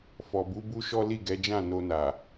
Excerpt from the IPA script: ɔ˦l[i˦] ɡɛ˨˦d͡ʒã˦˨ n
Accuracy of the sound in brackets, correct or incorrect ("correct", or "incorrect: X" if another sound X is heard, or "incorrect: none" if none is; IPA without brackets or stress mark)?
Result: incorrect: i˦˨